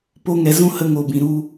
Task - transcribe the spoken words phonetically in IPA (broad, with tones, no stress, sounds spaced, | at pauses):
p o˧ ŋ ɛ˨ z ũ˦ h ə˧ ŋ o˨ b ĩ˨ ɾ u˧